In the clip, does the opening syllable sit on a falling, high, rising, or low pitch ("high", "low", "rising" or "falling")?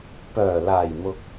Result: low